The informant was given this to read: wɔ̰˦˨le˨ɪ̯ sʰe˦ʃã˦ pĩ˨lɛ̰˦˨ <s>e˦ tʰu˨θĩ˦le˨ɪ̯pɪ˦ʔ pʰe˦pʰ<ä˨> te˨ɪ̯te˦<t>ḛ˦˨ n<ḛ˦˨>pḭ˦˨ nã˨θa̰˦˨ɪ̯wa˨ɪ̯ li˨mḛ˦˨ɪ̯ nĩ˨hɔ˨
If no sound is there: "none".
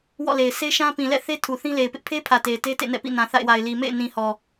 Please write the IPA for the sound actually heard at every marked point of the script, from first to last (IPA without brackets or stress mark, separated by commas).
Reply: θ, ä˨, t, ɛ̰˦˨